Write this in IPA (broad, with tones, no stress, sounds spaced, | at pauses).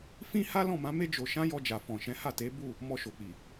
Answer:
f ĩ˦ h a˦ l ɔ̃˦˨ m ã˨˦ m e˦ d͡ʒ o˧ ʃ ã˦ j ɔ˧ d͡ʒ a˨ f ɔ̃˨ ʃ ɛ̃˨˦ h a˦˨ t e˨˦ b u˦˨ | m ɔ˧ ʃ o˨ k͡p i˨